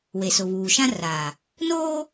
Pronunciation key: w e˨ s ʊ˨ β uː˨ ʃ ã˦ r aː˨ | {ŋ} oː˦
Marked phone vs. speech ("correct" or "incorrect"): incorrect